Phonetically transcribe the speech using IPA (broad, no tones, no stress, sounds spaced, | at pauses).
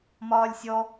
m ɒː lʲ sʲ ɔ